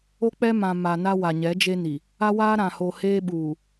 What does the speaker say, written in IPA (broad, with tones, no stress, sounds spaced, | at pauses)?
o˦ k͡p ɛ˦ m ã˨ m a˨ n a˦ w a˨ ɲ ɛ˨˦ d͡ʒ e˦ n i˨ | a˦ w aː˦ ɾ ã˨ h o˨ h eː˦ ɓ uː˨